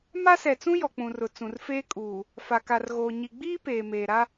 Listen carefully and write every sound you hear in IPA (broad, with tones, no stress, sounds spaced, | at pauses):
m a˦ s ɛ˨ t͡s ũ˦ j ɔ˨ k͡p ũ˨ r ʊ˨ t͡s ũ˨ r f eː˦ kʼ uː˨ | f a˨ k a˨ r ɣ oː˨ ɲ i˨ ɡ͡b iː˦ p eː˨ m eː˨ ɾ a˦